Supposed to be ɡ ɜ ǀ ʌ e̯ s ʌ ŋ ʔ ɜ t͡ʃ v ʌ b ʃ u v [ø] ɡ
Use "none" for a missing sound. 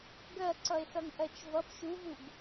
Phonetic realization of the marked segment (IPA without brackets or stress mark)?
u